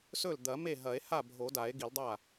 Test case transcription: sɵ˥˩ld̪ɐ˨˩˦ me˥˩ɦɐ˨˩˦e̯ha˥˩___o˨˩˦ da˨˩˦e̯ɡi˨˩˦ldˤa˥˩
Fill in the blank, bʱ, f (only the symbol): bʱ